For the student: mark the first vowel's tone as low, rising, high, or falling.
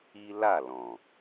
high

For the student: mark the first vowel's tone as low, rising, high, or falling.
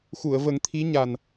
low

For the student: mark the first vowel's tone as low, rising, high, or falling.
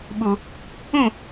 low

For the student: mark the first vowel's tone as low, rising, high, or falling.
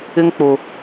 high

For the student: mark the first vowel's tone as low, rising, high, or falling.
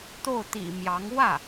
falling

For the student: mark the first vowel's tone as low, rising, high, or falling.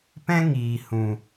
high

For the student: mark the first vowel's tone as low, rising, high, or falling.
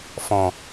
low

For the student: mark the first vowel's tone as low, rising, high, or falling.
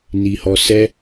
high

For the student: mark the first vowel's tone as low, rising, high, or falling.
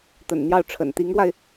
low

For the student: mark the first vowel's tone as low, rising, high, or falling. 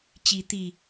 rising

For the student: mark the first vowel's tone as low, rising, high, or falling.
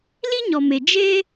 high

